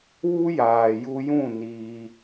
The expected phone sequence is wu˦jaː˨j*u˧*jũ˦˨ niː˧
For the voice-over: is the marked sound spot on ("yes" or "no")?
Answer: yes